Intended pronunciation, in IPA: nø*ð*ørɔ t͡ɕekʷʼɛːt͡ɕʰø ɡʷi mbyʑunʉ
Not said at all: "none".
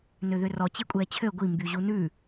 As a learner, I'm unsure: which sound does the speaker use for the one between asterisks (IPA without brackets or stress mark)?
ð